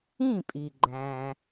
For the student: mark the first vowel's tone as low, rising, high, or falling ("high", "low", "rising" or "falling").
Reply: falling